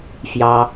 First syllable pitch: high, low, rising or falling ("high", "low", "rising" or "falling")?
low